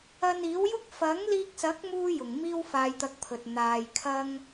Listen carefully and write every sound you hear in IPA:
ɐ˧niː˨˥wjʊ˥k̚ fɐ˨˥ŋliː˧k̚sɐ˨˥k̚ muː˥jʊ˨˩ŋ miː˥wfaː˧jt̪ɐ˧k̚pʰɵ˨t̚ n̪aː˧jkʰɐ˥ŋ

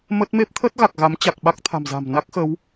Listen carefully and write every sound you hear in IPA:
mə˦˥t̚ me˦˥p̚t̪ʰə˦˥t̚ ɣa˨˩k̚ɣa˨˦mt͡ɕa˨˩k̚ ɓa˦˥k̚t̪ʰa̤˨˩mza̤˨˩m na˦˥k̚xə˨˦w

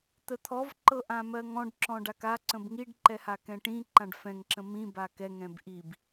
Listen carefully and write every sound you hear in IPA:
t̪ət̪ʰɔv ǃɤʔãmɜŋɔ̃ɖ ǁɔ̃ɖaka ǀə̃bŋiɖ ǃɛhakɛ̃ʈĩ ǃãɖfɛ̃ŋ ǁə̃mĩ bakɛ ŋɛ̃bʔib

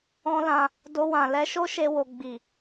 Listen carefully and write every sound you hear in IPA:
ɔ̃˦lã˧ | do˧wã˨ lɛ˨˦ʃo˦ ʃe˧wo˨ ɡ͡bi˨

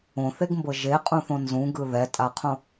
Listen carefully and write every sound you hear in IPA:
õθeɡmbɤ ʒeqʼũθõ nzũɡɯ ðɛtʼaqʰõ

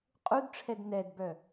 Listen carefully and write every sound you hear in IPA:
qʼudʈ͡ʂʰɛd nɛdbœ

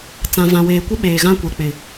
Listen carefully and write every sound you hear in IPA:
t͡sã˨vã˨weː˨ kʷɪ˦ɓeː˨ ɣã˦kʷɛ˨k͡pɪ˨

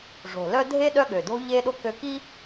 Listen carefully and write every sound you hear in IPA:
ʐo̤˨˩lœ˦ dʱe˦ ɗœ˦ɠø˨˩do̤˦ ʎe˦ɗo˦ kø˦ ki˦

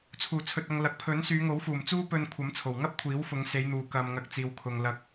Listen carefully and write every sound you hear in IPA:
t͡sʰuː˨˩t͡sʰɵ˨t̚ ɐ˧ŋlɐ˨˥k̚ pʰɵ˨˥nsyː˨˧ŋo˨˥w fuː˨˩mt͡suː˥pɵ˧n kʷʰɐ˨˥mt͡sʰo˨˩wŋɐ˥p̚ kʷʰiː˨˥wfʊ˨˧ŋse˨˧jn̪uː˨ kɐ˧m ŋɐ˧k̚t͡siː˨wkʰʊ˨ŋlɐ˧k̚

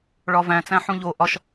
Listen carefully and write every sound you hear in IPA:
ɭɒvæ̃t͡sæ̃ ħũʎo ʔɒʃ

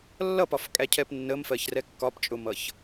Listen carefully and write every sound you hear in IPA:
lːʌpɒfkʼæcʰɛp nːəmfɜçrɛ kːɒpt͡ʃʼʊmʌç

